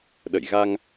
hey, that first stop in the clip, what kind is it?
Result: implosive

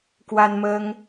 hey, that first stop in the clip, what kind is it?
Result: plain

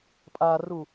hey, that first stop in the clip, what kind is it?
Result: ejective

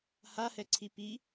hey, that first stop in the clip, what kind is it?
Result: click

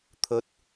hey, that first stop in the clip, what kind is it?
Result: aspirated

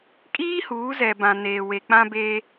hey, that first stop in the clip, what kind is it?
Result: ejective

